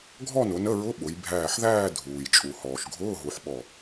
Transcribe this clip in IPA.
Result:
ɡʱ ɔ˥˧ n ʊ˩˧ n ə˧˥˧ ɹ ʊ˧˥˧ ɓ ʊ˩˧ j bʱ æː˧˩ ħ ð æː˥˧ dʱ uː˩ j t͡ʃʼ u˩ h ɔː˩ ʃ ɡʱ ʊː˧˥˧ ɦ u˩˧ ħ ɓ ɔ˧˩

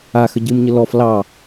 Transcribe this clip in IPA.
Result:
a x ə ɟ ɨ m ɲ ə l ɔ f l ɑ

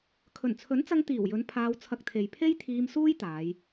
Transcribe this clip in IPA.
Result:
kʰ ɵ˨˩ n t͡sʰ ɵ˨˥ n t͡s ɐ˧ ŋ t̪ iː˨˩ w j ɵ˨˧ n pʰ aː˧ w t͡sʰ ɐ˧ k̚ t̪ʰ e˨ j pʰ e˥ j t̪ʰ iː˧ m s uː˥ j t̪ aː˨˧ j

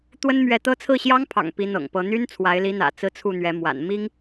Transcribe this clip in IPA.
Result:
t̪ w ə˥ n m ɥ ɛ˧˥ t̪ ɤ˥ t͡sʰ ɹ̩˥˩ ɕ j ɑ˥ ŋ pʰ ɑ̰˨˩ ŋ p i˧˥ n̪ ɤ̰˨˩ ŋ p ɤ˧˥ n̪ y˥ n t͡sʰ w a˧˥ ɪ̯ l i˧˥ n̪ ä̰˨˩ t͡s ɹ̩˥˧ t͡sʰ u˥˩ n̪ ɥ ɛ˧˥ m w a̰˨˩ n m i˥ ŋ

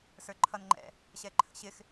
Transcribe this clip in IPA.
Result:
s ə˞ ǃʰ ʌ n ŋ͡ǃ ɛ̰ | ɕ ɛ ǃʰ ə̰ ɕ ɪ x

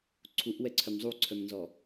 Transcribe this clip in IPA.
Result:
ǀʰ u ʔ w ɛ ǀʰ œ m zˤ u ǀʰ œ m n z ɔ

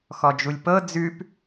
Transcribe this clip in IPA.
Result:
x ɔ d͡ʒ u lʲ p ɤ d͡z ʉ p

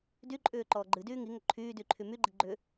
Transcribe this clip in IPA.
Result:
d y ǃʼ ʏː ǃ ɔː ɡ͡ǃ ɨ d yː ŋ i ŋ ʏ ǃʰ yː d y ǃʰ y m y ɡ͡ǃ i ɡ͡ǃ ʏ

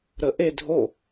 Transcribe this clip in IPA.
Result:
ɾ ə ʔ e dʱ o

